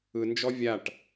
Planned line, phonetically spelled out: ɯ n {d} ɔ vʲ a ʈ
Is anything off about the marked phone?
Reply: yes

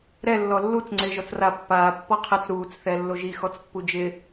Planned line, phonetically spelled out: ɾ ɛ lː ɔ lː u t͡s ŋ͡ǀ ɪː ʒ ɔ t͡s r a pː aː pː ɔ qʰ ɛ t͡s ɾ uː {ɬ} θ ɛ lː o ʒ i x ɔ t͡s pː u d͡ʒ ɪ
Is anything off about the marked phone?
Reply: yes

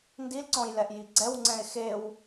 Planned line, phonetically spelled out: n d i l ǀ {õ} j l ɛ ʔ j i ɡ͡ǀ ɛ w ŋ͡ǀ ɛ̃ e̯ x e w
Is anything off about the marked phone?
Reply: yes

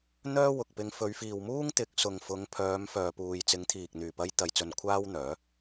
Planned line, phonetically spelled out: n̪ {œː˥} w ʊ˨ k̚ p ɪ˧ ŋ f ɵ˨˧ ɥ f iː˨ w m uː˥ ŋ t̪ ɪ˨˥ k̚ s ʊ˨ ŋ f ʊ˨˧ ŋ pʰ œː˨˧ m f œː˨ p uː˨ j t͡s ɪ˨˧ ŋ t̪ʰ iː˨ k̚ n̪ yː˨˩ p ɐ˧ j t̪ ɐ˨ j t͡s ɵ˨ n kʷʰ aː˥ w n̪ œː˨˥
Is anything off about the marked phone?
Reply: no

